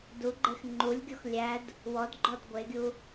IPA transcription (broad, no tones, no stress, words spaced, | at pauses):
duɡ͡ǃex ŋ͡ǃulʲɡʲɔx lʲæd | wɔdɡ͡ǃɔd ɡʷeɡʲu